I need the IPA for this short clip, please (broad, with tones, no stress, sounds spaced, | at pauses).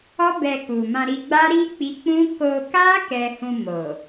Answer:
ɔ˦ b ɛ˧ k u˨ m ã˧ ɾ i˧ ɡ͡b a˦ ɾ i˦ k͡p i˦ k͡p ũ˦ k o˧ k a˦ k ɛ˧ h ũ˧ m o˨